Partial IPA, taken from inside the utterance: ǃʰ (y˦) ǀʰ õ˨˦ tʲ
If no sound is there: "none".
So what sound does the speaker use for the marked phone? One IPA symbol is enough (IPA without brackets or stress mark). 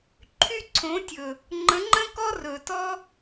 y˦